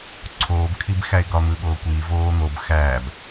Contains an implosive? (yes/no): yes